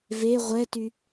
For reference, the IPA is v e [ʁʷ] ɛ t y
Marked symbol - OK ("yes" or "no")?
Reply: yes